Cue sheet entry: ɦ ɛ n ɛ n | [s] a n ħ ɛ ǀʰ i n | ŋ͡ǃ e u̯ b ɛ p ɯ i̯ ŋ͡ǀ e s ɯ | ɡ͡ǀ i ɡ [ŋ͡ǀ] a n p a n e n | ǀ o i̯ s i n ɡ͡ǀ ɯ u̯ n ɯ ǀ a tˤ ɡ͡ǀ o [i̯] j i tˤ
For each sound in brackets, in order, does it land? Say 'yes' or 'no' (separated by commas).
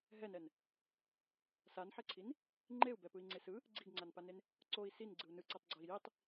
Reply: yes, yes, yes